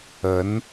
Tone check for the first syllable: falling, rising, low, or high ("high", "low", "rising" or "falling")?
rising